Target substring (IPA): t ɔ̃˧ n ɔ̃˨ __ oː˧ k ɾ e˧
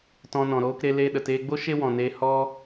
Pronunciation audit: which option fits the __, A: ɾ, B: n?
A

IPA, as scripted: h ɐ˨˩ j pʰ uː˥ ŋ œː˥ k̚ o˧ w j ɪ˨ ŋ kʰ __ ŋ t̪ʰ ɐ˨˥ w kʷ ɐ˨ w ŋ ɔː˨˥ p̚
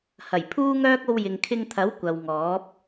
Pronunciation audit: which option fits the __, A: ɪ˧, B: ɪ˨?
A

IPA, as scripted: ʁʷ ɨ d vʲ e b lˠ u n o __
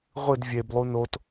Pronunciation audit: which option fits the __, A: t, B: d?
A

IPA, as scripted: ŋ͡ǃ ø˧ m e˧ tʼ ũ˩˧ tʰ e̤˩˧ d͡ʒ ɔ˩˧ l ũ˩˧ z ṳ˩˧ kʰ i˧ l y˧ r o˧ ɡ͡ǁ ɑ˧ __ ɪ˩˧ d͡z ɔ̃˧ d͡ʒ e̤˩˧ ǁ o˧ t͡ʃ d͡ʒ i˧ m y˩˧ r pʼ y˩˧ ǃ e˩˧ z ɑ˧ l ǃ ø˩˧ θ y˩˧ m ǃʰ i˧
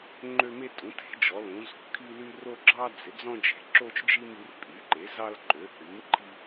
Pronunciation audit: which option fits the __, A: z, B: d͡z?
B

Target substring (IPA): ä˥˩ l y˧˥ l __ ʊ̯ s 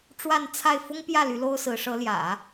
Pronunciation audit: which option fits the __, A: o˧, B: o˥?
B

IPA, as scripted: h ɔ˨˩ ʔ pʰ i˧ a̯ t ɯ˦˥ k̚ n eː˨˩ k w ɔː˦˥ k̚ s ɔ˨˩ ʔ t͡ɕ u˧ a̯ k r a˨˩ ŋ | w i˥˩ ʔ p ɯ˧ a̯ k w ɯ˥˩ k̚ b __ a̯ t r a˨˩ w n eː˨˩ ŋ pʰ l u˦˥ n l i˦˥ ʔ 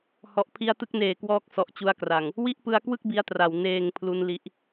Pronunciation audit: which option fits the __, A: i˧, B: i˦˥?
B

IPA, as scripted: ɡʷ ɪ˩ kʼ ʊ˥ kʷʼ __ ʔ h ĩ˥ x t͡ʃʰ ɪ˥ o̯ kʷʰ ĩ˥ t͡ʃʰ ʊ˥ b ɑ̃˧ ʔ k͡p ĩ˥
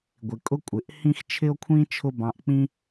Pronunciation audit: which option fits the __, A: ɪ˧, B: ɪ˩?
B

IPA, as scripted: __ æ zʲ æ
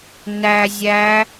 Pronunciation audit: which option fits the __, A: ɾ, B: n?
B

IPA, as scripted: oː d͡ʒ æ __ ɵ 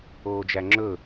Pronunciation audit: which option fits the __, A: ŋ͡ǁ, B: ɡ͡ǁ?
A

